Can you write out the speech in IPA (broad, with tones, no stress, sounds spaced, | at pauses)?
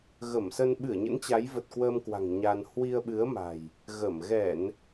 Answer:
ɣ ə˧˩ m s ə˧ n ɓ ɨ˧˩ ə̯ ɲ ə̰˧˥ n t͡ɕ a˨˦ j v ə˨˩ t̚ k w əː˧ m k w a̤˨˩ ŋ ɲ a˧ n h w i˧ ə̯ ɓ ɨ˨˦ ə̯ m a̤˨˩ j | ɣ ə˧˩ m ɣ ɛ˧˩˨ n